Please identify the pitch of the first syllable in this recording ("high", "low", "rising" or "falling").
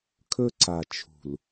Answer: high